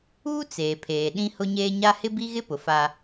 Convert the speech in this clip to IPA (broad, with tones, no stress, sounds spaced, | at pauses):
uː˦ t͡s eː˨ pʰ eː˨ ɗ ĩ˦ h ʊ˦ ɲ eː˦ ɲ a˦ h ɪ˦ b i˦ ɣ ɪ˦ p ʊ˨ f a˦